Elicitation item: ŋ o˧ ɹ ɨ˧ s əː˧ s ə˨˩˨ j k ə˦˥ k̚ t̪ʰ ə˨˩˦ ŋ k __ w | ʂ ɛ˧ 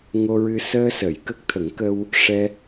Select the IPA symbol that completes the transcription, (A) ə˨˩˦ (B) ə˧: B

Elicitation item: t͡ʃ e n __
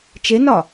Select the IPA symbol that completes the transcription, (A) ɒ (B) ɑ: A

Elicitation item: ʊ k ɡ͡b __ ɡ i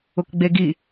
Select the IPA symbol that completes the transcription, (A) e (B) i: A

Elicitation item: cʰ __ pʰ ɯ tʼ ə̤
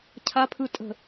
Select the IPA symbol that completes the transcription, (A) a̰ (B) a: B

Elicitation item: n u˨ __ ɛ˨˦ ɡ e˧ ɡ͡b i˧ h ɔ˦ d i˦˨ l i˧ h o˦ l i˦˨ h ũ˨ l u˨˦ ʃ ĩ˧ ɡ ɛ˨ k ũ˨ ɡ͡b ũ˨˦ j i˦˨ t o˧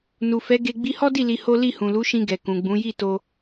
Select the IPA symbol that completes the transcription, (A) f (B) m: A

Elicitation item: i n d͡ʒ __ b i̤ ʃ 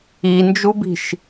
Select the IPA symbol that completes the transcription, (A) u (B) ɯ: A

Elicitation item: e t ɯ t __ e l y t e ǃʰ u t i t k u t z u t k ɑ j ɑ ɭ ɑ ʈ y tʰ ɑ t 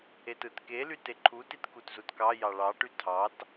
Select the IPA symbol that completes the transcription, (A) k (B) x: A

